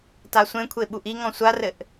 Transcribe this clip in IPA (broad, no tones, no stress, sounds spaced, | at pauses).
t a sʷ ẽ kʷʰ e ɓ u ʔ i ŋ ɔ̃ sʷ a r ɘ ʔ